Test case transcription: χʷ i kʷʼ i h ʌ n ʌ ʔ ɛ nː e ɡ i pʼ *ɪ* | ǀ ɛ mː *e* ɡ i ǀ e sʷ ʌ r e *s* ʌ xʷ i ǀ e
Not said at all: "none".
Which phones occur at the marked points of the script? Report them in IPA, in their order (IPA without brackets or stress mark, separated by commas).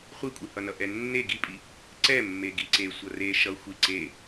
i, e, ʃ